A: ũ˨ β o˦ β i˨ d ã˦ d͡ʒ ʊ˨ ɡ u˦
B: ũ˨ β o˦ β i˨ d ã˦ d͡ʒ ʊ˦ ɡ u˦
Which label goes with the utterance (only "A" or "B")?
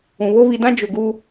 A